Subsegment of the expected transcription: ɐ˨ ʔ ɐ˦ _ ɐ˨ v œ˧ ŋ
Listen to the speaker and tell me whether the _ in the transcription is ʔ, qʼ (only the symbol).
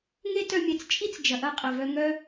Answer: qʼ